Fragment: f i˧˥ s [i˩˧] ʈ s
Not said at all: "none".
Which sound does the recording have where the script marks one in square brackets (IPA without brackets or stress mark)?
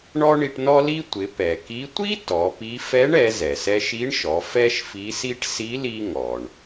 i˥